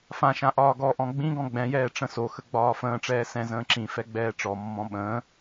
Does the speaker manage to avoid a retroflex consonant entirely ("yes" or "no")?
no